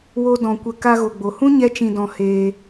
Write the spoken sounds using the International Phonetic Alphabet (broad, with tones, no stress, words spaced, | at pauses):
wo˦dɔ̃˧kʷə˦˨ ka˧ɣo˨ɡ͡bo˨hũ˦ ɲɛ˦t͡ʃĩ˧dɔ̃˧ heː˧